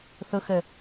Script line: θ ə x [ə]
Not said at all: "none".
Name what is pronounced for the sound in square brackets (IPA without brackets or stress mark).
ɛ